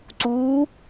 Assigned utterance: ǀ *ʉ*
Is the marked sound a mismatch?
yes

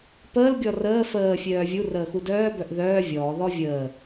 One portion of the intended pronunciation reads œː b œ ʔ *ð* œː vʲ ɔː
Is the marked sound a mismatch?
no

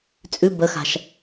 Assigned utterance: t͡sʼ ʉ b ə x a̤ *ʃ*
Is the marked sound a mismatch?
no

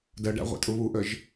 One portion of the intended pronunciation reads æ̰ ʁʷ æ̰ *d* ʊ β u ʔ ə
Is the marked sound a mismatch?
yes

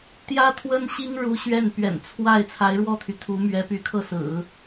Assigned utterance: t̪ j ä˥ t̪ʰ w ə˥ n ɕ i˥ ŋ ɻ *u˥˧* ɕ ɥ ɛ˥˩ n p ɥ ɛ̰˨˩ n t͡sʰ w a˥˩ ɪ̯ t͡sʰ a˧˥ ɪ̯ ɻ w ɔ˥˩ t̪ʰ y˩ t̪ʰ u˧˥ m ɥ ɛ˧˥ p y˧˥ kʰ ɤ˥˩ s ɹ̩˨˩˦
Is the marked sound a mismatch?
yes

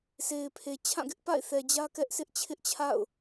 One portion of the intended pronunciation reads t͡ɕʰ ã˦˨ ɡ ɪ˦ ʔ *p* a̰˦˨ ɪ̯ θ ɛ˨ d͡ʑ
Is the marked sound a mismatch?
no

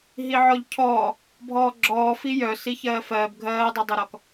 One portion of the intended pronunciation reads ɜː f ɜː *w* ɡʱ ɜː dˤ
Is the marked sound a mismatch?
yes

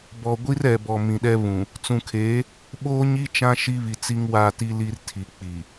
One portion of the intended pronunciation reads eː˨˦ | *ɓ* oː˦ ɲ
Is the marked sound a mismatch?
no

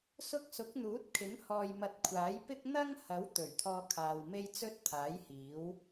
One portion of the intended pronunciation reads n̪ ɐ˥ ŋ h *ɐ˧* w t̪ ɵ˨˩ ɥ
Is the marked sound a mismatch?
yes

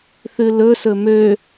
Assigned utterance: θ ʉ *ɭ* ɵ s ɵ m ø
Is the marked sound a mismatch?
yes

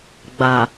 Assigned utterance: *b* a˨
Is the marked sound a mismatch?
yes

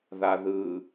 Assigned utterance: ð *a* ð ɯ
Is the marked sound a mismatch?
no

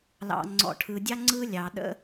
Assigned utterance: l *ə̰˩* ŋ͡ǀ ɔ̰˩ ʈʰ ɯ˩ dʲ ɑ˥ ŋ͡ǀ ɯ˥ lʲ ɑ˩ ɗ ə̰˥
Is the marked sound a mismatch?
yes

